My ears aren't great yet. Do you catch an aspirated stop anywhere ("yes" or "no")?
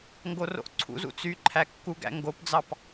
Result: yes